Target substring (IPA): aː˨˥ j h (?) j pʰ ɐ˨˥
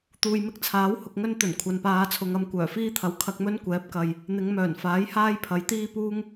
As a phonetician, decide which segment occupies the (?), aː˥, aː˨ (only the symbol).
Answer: aː˥